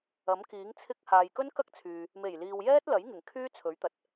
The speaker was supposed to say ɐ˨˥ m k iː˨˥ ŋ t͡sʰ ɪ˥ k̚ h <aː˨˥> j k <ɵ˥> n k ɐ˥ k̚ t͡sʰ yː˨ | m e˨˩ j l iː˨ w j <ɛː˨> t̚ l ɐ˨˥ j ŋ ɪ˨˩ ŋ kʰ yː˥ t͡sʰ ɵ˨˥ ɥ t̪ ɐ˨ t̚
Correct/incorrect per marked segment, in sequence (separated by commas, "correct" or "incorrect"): incorrect, correct, incorrect